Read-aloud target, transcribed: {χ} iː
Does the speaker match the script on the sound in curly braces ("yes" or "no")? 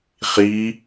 yes